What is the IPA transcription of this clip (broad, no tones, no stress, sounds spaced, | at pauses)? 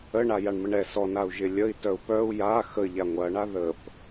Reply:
ə ɳ a j a ɳ m ə ɳ ɛ s ɔ n a u̯ ʒ ɪ lʲ ə i̯ t œ u̯ p œ u̯ j a x ə ʎ a ŋʷ ɐ ɳ a ð ə p